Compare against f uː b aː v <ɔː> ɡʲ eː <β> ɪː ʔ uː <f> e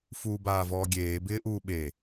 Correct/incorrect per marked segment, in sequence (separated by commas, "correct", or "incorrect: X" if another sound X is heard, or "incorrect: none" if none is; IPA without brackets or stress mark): correct, incorrect: b, incorrect: ɓ